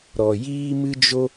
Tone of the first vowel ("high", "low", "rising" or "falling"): low